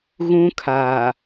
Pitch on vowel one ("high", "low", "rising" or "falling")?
high